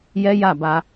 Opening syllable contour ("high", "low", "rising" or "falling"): high